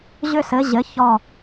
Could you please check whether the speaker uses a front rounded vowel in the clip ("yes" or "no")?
yes